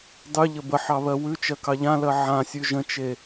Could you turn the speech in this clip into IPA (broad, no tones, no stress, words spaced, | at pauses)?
dˤʉʎə bəħɑβɜ wʉt͡ʃɜkɑ ʎãlɜ ʕãsʲʉ ʒə̃t͡ʃe